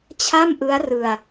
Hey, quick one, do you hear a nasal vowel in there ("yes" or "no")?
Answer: no